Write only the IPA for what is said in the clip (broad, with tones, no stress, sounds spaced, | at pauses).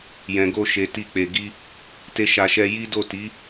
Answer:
j ɛ̃˨ ɡ o˧ ʃ e˨ t i˧ k͡p e˨ ɡ i˧ | t e˧ ʃ a˨ ʃ ɛ˧ j i˦ d o˦˨ t i˨˦